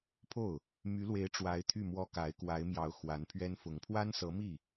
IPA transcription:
pʰ o˥˩ ʊ̯ | m y˧˥ l w e˧˥ ɪ̯ ʈ͡ʂ w a˧˥ ɪ̯ t̪ʰ y˥˩ m w ɔ˥ k a˧˥ ɪ̯ k w a˧˥ ɪ̯ m j ɑ˧˥ ʊ̯ x w a˧˥ n pʰ ɥ ɛ˥ n f ʊ˧˥ ŋ pʰ w a˥ n s ɤ˧˥ m i˥˩

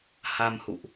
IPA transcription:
h a˧ m h ṵ˧˨ ʔ

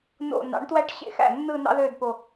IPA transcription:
n o̰˧˩ n ɑ̰˩˥ ɳ t w æ˥˧ ʈ ɕ ḛ˥˩ x æ̰˥˩ nː ɯ˥˧ n ɑ̰˥ ð ø˥˧ d p o˧˩

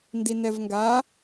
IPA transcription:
n d i n ɛ v ŋ ɡ a

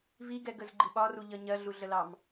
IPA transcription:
v i ɡ ɛ ɡ ə z ɡ͡ǃ i ɓ ɒ r u ʎ ʌ ɲ ɜ ɮ u ɮ ə l ɑ m

